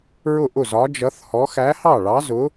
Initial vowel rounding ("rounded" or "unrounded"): rounded